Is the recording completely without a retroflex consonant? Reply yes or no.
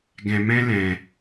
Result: yes